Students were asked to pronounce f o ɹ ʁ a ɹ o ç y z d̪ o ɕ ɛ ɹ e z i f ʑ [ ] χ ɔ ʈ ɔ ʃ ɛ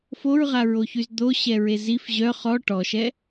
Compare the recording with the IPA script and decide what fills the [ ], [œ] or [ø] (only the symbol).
œ